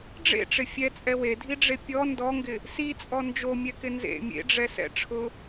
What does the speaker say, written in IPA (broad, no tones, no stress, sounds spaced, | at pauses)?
ɖ͡ʐ ḛ ʈ͡ʂ ɪ fʲ ɛ t͡sʼ ɛ w e dʱ i ɖ͡ʐ e pʲ ɔ n d ɔ ŋ ɡ ɪ | s i t͡sʼ ɔ n d͡ʒ o mʲ ɛ k ɪ n z ḛ mʲ ḛ ɖ͡ʐ ɛ s ɛ̰ ʈ͡ʂʰ ʊ